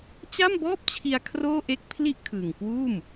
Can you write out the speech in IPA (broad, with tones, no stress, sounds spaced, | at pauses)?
t͡ɕ a˥˩ m b ɔː˥˩ p̚ t͡ɕʰ i˧ a̯ kʰ r oː˥˩ ʔ e˥˩ k̚ pʰ l i˥˩ ʔ kʰ ɯː˨˩ ŋ k w uː˥˩ m